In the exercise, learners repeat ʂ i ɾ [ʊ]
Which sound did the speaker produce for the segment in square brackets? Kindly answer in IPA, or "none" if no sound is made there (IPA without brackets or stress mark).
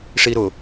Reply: ʊ